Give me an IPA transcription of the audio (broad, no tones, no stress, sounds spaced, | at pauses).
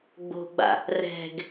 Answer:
ɡ͡b o̤ ɡ͡b a̰ | r ɛ̤ ɡ